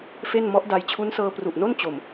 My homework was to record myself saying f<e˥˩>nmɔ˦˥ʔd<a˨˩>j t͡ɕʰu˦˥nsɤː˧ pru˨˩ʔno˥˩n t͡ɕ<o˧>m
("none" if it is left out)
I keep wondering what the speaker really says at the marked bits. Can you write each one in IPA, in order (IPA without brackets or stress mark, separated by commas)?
e˥˩, a˧, o˨˩